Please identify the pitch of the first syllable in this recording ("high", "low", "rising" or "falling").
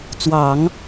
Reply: low